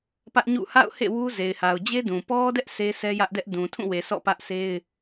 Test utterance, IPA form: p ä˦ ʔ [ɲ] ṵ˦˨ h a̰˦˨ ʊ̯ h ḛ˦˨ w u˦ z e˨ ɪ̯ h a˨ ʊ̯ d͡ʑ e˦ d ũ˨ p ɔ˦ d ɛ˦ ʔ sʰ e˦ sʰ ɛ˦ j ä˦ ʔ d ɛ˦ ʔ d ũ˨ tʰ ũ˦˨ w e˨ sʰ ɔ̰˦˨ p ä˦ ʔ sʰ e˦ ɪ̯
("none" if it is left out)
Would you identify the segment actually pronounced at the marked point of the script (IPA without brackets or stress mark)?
ɲ